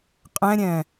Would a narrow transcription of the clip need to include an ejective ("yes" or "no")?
yes